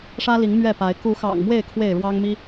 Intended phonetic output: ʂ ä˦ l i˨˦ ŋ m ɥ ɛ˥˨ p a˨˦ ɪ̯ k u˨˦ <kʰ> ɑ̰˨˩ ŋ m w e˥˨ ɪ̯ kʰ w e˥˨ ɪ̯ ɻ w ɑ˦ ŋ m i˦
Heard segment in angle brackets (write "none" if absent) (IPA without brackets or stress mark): x